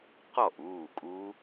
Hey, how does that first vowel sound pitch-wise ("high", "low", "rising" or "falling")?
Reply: falling